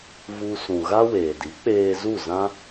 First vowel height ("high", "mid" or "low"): high